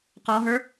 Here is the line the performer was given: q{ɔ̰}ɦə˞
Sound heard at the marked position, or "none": ɔ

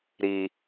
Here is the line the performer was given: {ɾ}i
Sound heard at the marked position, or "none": ɾ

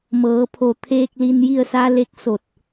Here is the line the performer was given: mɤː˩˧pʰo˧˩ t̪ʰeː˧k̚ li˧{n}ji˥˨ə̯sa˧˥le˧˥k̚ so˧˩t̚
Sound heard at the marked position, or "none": n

